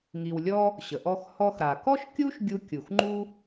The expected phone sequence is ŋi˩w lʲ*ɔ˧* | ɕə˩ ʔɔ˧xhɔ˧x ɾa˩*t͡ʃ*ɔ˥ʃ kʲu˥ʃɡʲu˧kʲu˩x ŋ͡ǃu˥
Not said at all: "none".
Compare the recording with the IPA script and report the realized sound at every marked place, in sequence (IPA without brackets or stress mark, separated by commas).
ɔ˧, k